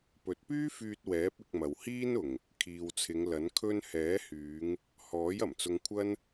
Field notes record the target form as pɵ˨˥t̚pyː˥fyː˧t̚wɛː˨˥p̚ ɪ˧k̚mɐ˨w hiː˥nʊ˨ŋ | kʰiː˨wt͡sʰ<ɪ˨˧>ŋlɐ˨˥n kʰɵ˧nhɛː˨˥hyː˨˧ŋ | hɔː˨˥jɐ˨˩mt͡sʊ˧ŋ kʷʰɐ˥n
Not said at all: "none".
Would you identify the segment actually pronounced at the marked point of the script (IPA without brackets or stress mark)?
ɪ˨˧